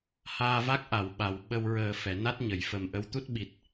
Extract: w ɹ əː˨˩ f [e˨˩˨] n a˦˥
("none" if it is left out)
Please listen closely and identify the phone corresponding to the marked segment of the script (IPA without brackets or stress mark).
ɛ˨˩˨